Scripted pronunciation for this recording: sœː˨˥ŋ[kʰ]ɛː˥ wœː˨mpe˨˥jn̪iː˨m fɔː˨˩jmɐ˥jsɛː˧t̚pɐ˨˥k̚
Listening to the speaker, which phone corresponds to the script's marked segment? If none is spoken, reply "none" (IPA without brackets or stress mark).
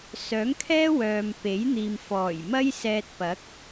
kʰ